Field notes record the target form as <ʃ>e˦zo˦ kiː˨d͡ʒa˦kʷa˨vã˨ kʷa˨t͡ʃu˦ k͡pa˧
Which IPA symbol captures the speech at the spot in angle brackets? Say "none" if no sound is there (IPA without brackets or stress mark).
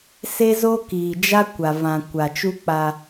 s